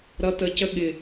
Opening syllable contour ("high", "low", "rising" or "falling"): low